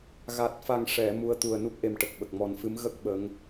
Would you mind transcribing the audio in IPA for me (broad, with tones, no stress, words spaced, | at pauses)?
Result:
ɣa˨˩t̚fa˨˩ŋʂɛ˨˩˨ mu˧˥ə̯t̪u˨˩ə̯ nu˦˥k̚ʔe˨˩mʈə˨˩k̚ ɓə˨˩k̚mɔ˨˩nfɨ˧˥m ɣə˦˥k̚ ɓə˧˥ŋ